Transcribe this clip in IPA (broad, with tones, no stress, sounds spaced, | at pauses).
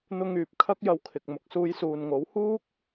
n̪ ʊ˧ ŋ yː˨ p̚ kʰ ɐ˥ k̚ j ɐ˧ w kʰ ɪ˨ k̚ m ʊ˨ k̚ s uː˧ j s uː˨ n ŋ o˨˥ w h uː˥ k̚